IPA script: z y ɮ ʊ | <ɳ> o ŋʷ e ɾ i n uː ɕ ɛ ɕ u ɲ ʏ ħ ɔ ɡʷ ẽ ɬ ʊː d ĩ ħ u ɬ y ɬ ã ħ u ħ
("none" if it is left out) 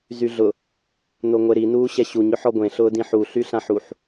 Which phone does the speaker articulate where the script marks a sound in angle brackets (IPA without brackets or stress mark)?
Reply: n